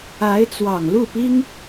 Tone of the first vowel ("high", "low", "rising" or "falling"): rising